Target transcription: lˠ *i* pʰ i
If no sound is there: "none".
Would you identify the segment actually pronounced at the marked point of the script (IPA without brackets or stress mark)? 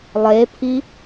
e